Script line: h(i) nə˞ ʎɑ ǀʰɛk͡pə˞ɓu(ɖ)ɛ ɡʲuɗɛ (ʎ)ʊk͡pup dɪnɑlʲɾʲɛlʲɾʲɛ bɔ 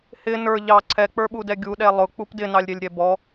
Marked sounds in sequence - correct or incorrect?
incorrect: ɪ, incorrect: d, incorrect: lˠ

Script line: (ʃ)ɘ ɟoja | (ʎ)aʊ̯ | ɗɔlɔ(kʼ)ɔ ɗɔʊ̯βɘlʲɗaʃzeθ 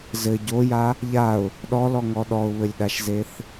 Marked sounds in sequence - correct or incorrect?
incorrect: z, correct, incorrect: ŋ

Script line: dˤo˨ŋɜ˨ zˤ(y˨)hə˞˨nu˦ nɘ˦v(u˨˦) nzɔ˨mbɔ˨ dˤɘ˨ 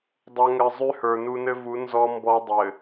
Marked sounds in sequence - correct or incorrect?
incorrect: y˦, correct

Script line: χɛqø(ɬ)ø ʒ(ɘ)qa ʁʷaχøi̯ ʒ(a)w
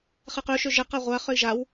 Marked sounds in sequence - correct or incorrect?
incorrect: ʃ, correct, correct

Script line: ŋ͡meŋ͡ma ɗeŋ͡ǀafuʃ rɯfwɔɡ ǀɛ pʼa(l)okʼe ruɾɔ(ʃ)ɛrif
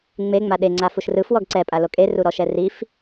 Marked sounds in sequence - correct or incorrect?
correct, correct

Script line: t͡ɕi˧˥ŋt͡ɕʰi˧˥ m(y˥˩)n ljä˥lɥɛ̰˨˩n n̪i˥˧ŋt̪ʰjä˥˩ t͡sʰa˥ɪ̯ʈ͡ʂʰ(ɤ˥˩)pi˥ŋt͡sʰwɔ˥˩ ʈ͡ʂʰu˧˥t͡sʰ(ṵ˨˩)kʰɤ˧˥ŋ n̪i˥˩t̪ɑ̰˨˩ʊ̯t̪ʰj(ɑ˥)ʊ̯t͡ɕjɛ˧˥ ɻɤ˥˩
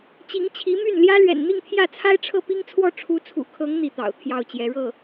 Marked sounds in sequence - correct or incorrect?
correct, correct, correct, incorrect: ɑ˥˩

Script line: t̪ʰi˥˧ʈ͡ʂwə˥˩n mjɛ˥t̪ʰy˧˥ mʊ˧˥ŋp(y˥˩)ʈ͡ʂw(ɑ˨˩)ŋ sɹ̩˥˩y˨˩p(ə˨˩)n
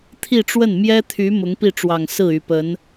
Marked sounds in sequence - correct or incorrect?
incorrect: i˥˩, correct, incorrect: ə˧˥

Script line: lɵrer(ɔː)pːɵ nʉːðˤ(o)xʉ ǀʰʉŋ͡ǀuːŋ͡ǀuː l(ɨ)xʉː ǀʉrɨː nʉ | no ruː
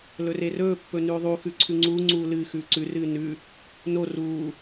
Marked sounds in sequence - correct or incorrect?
incorrect: ɵː, incorrect: u, correct

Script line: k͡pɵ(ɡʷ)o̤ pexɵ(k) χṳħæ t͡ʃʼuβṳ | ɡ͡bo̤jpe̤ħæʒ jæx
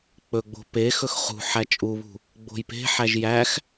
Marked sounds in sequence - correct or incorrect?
incorrect: ɡ͡b, incorrect: x

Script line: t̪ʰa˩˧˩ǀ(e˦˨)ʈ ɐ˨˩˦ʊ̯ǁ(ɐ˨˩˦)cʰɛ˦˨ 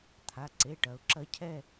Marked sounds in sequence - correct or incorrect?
incorrect: e˩˧˩, incorrect: ɐ˨˥

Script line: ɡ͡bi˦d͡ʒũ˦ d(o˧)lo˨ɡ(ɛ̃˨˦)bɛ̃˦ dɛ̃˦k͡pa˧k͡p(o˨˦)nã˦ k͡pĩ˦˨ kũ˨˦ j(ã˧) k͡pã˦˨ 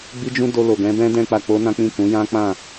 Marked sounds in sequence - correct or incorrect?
correct, correct, incorrect: o˦, incorrect: ã˦

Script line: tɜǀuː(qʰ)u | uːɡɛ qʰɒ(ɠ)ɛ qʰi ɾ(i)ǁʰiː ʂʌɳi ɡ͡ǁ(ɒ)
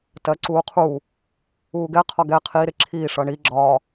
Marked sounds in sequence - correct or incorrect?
correct, incorrect: ɡ, incorrect: ɪ, correct

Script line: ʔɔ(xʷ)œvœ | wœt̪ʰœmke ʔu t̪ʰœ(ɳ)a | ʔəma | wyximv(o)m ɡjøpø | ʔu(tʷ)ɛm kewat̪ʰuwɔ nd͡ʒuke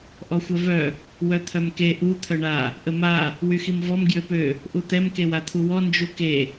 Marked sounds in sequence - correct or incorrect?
correct, correct, incorrect: ɔ, incorrect: t̪

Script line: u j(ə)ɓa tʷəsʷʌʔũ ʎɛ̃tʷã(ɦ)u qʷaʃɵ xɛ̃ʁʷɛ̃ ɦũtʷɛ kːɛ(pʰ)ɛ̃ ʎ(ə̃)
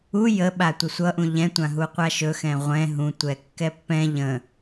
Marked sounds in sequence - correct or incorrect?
correct, correct, incorrect: pː, correct

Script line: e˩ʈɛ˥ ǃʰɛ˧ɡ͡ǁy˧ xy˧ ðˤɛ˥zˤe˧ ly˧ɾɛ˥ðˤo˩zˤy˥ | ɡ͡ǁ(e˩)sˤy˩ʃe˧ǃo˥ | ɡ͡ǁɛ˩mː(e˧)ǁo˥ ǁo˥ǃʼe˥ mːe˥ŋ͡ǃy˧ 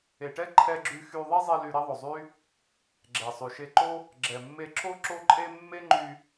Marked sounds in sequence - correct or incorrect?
incorrect: ɛ˩, correct

